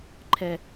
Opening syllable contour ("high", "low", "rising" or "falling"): low